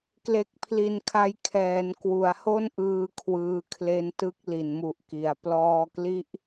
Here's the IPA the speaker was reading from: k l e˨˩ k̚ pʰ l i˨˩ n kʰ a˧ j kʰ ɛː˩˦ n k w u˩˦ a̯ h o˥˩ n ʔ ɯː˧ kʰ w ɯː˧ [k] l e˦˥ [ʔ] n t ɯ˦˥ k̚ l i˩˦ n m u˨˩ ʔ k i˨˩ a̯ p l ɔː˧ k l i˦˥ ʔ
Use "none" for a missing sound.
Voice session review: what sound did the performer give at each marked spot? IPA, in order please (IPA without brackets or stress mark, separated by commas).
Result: kʰ, none